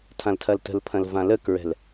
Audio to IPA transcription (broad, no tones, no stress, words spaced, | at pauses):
tʰãltʰɐltə̤lpʰɐ̃l vãləkɹɛ̤l